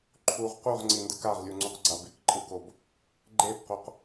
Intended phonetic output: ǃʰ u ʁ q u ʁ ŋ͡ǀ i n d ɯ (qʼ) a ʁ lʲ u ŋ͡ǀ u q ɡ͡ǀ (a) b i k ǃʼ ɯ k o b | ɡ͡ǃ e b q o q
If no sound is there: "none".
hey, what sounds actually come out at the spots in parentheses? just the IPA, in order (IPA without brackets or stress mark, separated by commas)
k, a